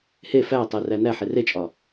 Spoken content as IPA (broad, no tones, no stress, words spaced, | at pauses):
he fætˤeræ næħe ret͡ʃʼɒ